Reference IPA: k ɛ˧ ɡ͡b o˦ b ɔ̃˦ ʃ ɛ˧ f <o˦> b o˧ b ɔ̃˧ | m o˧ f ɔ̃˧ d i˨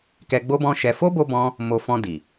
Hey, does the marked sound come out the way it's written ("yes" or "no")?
yes